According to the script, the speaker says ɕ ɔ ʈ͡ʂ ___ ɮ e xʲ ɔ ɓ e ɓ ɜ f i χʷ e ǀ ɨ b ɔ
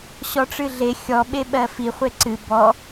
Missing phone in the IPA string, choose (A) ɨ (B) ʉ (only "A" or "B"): A